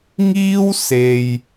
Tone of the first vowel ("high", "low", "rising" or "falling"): high